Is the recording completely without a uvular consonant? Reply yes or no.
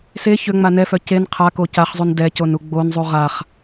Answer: no